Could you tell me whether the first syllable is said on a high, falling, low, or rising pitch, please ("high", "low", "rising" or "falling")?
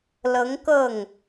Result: rising